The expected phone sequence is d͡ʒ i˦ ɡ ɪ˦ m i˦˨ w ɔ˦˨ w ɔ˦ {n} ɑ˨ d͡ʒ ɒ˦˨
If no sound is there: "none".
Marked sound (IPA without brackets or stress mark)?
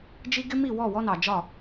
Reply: n